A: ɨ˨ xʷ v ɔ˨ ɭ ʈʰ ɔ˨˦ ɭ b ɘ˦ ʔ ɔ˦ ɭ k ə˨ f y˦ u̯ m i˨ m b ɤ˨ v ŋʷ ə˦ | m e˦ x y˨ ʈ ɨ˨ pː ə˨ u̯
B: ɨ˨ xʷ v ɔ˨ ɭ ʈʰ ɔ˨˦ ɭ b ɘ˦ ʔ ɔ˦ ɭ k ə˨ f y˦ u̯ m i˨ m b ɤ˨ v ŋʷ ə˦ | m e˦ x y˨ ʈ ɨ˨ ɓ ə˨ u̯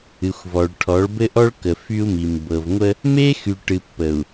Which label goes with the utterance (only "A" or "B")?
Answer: A